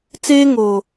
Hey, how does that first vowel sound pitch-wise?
high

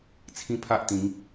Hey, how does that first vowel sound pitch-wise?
high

